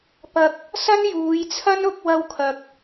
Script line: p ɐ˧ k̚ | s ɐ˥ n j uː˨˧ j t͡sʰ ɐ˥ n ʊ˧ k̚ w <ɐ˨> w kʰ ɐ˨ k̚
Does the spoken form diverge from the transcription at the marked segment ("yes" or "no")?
yes